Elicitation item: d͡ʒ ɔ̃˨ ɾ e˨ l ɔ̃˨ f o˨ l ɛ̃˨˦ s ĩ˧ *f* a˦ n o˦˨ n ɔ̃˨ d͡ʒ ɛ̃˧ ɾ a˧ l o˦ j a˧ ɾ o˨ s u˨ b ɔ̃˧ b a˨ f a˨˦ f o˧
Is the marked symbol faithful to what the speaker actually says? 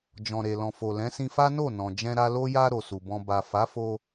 yes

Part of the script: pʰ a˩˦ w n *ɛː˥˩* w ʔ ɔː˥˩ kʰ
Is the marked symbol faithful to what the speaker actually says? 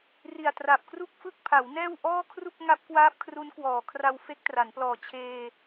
yes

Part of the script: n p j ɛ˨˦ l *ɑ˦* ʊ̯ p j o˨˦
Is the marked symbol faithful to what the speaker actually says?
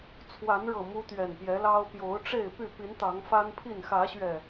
yes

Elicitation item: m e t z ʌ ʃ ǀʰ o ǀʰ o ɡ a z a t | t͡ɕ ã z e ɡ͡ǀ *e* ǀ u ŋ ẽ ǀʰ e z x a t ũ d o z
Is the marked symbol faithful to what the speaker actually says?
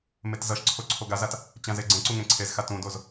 no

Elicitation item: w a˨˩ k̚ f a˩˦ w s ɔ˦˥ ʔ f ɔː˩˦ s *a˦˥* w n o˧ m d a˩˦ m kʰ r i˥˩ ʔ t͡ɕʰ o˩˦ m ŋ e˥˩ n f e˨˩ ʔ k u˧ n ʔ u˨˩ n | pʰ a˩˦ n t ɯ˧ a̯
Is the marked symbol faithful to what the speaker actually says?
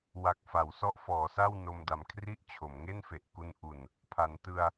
no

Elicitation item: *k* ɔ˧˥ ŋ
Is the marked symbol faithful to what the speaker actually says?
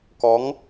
yes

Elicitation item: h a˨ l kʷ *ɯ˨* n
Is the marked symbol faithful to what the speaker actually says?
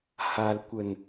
no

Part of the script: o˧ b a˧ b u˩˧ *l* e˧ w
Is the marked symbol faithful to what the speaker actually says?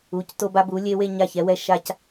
no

